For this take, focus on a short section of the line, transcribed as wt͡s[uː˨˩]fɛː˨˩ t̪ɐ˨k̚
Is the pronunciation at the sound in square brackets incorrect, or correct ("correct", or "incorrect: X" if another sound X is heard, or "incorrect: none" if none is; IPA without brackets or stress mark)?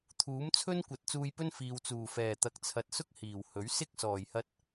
correct